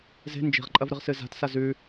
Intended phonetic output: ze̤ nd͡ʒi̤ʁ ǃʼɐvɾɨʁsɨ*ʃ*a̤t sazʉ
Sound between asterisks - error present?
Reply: yes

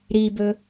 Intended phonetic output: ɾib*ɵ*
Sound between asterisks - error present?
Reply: no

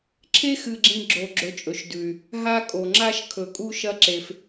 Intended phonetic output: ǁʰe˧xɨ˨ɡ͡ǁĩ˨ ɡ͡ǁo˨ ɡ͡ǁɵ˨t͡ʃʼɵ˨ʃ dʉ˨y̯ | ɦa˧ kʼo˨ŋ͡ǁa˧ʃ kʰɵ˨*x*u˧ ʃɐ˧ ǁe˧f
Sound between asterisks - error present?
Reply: yes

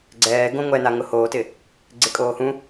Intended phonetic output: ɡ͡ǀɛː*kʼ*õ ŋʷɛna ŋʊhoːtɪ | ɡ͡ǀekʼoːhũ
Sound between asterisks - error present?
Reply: yes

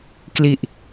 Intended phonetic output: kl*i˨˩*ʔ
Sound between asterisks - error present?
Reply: no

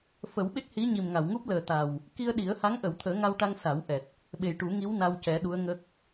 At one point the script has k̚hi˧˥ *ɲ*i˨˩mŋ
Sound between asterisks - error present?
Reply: no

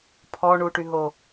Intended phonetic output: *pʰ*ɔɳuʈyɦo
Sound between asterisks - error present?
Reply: no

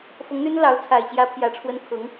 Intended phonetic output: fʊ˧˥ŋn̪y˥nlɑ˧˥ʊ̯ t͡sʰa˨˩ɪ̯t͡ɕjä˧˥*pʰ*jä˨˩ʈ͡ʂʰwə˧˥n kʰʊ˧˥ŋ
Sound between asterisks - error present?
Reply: no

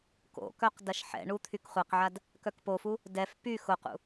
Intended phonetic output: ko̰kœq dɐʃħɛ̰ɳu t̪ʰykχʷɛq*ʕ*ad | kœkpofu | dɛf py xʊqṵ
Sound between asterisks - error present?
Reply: no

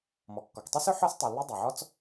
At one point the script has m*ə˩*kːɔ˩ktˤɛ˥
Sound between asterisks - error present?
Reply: yes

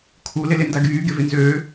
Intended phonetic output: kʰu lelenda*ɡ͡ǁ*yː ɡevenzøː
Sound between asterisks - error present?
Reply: yes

